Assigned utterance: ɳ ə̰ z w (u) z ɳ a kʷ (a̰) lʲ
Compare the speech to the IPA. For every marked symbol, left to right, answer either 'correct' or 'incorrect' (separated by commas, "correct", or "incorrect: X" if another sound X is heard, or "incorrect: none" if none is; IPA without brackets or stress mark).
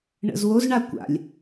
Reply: incorrect: o, correct